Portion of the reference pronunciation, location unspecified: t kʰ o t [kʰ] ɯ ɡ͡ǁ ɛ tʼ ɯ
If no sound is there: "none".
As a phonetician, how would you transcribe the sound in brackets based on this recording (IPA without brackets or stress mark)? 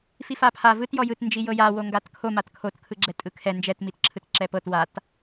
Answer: kʰ